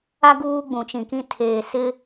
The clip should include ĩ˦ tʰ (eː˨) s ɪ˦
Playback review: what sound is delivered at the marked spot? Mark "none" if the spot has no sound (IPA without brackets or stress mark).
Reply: eː˨